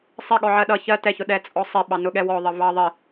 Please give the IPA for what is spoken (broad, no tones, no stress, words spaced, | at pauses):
sˤɪ ɠɔʕɜɗʌ çɜ tɛçʊ ɗɛt͡sʼɔsˤɪɓɑ nʊɠɛwɔðˤə vɑ ðˤɪ